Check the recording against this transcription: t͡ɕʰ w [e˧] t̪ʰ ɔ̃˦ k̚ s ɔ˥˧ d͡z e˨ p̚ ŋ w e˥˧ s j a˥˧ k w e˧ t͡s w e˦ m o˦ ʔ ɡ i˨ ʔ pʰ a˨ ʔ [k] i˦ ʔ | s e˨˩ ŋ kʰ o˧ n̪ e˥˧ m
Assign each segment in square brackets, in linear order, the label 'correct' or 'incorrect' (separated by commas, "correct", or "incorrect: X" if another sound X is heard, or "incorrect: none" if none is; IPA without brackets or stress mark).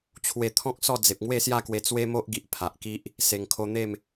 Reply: correct, correct